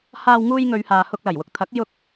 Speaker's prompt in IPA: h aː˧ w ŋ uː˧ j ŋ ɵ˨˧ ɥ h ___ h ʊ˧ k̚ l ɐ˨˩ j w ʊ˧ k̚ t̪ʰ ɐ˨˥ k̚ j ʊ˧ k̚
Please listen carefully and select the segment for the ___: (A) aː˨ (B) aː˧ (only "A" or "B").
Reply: A